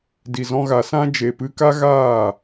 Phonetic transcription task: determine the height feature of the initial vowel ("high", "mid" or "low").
high